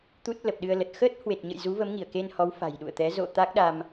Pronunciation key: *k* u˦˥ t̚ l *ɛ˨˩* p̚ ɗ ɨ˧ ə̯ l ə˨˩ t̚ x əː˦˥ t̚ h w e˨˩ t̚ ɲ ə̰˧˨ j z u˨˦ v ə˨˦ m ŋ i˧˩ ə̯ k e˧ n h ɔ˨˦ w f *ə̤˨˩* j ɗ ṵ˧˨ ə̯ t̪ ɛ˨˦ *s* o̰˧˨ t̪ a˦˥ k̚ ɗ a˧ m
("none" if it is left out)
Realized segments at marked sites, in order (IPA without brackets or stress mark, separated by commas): t̪, ə˨˩, a̤˨˩, z